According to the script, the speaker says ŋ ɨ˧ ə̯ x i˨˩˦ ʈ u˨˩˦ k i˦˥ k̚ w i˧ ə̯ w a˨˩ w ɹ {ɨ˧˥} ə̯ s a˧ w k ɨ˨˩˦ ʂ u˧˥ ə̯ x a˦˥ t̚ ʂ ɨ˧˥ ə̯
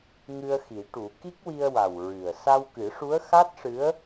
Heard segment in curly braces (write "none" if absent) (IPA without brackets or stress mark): ɨ˨˩